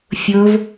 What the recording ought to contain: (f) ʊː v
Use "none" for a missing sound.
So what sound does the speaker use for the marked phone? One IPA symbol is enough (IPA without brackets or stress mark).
fʲ